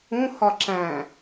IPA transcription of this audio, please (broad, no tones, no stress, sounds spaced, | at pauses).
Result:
ũ h ɒ ǁ æ̃